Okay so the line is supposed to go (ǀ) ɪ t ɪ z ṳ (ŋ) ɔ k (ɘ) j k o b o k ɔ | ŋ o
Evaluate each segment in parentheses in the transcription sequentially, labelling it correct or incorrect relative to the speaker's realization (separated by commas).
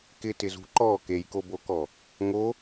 incorrect, incorrect, incorrect